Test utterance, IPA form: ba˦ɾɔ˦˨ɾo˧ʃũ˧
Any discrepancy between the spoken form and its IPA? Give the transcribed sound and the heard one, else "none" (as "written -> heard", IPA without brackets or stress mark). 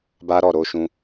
none